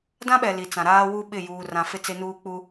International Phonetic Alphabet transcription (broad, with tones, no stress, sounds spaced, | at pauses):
d ã˦ ɓ ɛ˨ l i˨ t͡s ã˨ ɾ aː˦ w u˦ ɓ ɪ˦˨ j uː˨ r ã˨ f ɪ˦ t͡s e˦ n uː˦ k͡p u˦